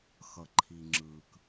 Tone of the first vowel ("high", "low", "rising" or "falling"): low